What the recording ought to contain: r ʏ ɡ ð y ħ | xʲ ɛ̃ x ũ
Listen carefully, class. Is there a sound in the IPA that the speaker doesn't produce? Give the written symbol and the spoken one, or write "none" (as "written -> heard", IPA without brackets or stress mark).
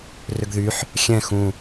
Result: none